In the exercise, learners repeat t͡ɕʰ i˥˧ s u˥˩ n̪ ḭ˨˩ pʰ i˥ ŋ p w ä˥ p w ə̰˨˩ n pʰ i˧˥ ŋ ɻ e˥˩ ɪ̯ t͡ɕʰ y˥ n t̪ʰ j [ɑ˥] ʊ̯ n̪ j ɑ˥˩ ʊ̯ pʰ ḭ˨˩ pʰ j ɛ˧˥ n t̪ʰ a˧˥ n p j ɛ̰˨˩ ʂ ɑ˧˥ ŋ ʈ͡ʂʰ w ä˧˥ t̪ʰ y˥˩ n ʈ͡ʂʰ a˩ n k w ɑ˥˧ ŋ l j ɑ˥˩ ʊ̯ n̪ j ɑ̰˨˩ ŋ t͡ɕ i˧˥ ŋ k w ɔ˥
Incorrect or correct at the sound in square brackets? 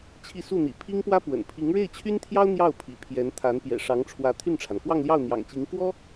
correct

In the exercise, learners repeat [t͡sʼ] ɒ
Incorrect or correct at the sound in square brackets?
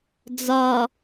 incorrect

